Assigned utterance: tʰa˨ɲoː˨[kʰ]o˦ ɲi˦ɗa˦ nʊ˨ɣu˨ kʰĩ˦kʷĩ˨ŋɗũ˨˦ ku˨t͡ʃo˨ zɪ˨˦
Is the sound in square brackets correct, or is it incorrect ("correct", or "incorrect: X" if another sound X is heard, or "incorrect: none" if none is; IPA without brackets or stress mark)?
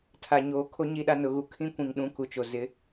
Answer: correct